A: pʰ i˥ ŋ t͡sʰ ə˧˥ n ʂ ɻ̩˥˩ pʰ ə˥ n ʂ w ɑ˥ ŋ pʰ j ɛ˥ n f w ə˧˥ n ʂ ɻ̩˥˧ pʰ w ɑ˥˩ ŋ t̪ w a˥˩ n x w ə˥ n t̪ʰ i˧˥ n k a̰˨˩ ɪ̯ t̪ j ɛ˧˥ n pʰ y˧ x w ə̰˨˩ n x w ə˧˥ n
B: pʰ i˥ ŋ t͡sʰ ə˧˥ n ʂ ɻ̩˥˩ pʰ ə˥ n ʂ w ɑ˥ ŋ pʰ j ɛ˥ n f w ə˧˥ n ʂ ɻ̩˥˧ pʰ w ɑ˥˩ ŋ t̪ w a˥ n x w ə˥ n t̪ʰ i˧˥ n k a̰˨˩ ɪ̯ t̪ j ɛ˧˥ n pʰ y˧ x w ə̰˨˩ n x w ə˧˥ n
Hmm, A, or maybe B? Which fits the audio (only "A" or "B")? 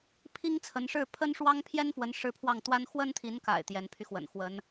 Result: B